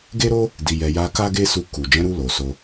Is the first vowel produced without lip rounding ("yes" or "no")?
yes